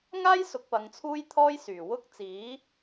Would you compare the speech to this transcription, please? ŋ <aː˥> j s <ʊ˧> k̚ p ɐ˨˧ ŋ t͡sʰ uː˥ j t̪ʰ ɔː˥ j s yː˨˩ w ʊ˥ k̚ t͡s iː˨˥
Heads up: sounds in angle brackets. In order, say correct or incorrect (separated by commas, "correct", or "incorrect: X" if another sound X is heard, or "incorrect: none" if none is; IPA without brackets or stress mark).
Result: correct, correct